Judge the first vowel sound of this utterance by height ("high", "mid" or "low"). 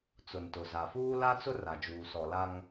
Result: high